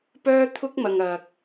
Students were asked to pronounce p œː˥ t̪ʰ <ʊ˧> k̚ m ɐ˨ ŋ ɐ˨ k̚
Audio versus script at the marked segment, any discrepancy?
yes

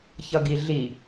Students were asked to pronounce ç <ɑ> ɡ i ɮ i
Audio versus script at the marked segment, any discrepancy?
yes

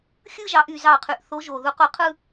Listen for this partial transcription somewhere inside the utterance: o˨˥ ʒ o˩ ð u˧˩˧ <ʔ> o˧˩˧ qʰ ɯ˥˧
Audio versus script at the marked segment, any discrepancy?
yes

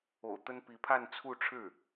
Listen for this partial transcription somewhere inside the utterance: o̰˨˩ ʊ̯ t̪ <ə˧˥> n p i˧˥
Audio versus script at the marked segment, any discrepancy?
yes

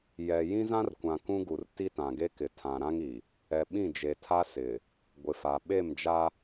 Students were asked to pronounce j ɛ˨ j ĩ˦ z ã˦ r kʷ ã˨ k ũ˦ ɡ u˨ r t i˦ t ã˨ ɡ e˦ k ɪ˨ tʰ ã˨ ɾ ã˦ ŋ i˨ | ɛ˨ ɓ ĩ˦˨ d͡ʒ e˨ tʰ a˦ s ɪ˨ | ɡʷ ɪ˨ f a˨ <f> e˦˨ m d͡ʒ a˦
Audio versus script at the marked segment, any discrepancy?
yes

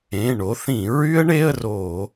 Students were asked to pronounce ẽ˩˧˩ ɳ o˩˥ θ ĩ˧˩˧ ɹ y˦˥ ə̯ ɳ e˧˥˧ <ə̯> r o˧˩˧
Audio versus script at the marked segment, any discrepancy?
no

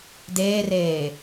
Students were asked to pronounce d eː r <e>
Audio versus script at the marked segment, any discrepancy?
yes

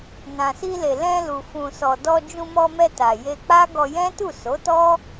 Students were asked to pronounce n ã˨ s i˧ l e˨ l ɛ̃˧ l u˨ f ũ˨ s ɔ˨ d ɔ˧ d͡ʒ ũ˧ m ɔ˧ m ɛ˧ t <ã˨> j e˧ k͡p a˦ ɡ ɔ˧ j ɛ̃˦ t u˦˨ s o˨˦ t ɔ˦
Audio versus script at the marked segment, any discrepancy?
yes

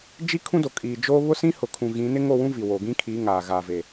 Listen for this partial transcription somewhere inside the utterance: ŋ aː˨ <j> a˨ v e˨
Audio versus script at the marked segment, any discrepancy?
yes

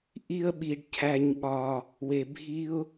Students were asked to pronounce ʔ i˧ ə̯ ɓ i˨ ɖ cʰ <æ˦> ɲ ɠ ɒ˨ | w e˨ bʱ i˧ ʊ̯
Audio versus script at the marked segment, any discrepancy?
yes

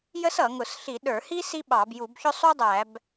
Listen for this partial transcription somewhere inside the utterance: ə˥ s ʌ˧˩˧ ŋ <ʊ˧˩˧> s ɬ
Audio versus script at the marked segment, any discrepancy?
no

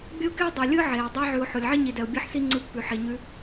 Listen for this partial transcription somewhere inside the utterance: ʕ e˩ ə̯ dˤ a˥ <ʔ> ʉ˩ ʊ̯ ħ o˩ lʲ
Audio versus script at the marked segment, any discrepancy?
yes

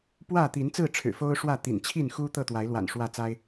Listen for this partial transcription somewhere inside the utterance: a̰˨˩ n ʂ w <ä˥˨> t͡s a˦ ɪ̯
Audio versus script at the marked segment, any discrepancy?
no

